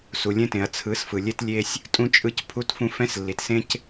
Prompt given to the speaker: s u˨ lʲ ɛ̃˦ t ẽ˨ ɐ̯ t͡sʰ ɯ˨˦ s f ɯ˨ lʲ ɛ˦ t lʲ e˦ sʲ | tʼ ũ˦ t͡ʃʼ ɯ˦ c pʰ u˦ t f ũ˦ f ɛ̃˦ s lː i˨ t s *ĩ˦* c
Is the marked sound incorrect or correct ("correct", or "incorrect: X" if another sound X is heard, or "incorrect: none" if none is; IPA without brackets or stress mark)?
incorrect: ẽ˦